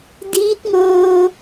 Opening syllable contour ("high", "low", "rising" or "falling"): rising